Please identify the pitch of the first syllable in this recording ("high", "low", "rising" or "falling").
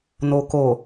low